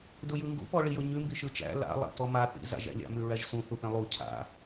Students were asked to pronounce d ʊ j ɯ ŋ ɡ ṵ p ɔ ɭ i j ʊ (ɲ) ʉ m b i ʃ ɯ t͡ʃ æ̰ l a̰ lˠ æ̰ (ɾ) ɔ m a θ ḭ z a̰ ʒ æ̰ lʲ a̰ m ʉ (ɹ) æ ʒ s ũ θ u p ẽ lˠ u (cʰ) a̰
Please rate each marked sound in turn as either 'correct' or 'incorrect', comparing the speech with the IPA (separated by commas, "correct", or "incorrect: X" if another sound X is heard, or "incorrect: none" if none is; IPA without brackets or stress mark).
correct, incorrect: t̪, correct, correct